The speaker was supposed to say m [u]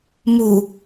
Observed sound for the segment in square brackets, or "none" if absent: u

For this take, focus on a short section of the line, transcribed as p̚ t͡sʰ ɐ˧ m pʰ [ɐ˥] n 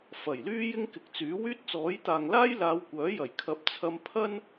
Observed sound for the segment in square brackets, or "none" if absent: ɐ˥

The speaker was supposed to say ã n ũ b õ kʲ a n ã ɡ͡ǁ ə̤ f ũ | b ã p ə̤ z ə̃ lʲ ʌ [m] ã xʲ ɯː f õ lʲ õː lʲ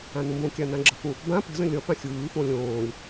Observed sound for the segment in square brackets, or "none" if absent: f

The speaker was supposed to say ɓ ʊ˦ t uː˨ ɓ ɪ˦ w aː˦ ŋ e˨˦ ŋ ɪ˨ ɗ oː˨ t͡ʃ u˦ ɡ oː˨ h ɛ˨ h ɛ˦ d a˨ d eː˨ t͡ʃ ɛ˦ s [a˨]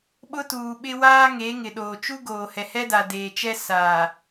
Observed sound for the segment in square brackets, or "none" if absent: aː˨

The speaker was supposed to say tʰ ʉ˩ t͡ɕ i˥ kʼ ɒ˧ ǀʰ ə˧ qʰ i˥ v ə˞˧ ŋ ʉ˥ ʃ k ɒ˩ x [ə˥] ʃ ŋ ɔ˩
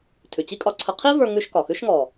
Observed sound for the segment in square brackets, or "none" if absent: ʉ˥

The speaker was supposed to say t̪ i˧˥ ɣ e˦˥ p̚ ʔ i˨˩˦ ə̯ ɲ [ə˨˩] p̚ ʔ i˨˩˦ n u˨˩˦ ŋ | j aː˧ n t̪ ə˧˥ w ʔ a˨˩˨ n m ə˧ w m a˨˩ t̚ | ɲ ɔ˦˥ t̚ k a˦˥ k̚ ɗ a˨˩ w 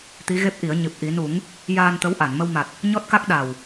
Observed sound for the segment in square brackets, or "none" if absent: ɨ˨˩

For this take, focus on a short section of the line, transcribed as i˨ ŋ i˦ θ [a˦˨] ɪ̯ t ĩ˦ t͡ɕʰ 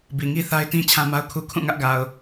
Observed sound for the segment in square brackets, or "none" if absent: a˦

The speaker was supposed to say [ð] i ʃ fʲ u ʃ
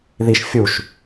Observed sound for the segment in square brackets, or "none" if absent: ð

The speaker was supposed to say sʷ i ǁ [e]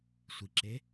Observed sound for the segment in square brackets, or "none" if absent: e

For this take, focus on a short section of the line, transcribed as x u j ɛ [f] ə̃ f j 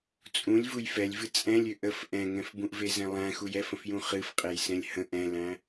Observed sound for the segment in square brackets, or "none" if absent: f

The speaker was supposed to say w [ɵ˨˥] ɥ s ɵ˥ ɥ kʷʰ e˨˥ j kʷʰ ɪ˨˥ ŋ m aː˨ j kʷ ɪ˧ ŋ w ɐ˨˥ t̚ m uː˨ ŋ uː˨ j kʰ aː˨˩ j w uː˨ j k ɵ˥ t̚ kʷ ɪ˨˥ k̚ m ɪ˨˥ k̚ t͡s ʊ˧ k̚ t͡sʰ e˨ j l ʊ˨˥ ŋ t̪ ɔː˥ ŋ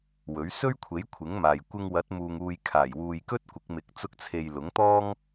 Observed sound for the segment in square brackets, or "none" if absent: ɵ˨˥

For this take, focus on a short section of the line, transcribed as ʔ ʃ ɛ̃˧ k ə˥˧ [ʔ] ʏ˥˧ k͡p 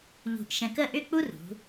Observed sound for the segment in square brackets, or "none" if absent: ʔ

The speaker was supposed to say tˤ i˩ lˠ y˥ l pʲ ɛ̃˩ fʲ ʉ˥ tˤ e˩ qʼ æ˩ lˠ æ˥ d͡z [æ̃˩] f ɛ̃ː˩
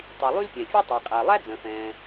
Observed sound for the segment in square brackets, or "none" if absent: œ̃˩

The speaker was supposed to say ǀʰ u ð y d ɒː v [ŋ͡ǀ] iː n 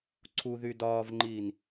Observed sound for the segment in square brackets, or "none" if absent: ŋ͡ǃ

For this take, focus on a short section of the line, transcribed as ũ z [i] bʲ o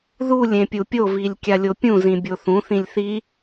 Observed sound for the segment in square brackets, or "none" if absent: ĩ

